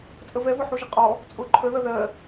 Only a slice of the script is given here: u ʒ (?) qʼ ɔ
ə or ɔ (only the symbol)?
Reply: ə